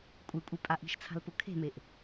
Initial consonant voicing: voiceless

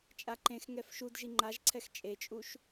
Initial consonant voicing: voiceless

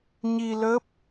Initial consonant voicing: voiced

